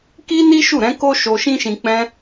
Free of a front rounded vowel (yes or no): yes